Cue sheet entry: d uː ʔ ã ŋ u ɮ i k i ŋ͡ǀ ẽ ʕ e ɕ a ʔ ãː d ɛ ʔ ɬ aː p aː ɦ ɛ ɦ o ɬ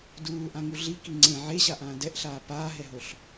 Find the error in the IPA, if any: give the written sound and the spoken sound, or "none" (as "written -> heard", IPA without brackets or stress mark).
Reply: none